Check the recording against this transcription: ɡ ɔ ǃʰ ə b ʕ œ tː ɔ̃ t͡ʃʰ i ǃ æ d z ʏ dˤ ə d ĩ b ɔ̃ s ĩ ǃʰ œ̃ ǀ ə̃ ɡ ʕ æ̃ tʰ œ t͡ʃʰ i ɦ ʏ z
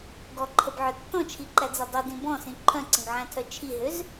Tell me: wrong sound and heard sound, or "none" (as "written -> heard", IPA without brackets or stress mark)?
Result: none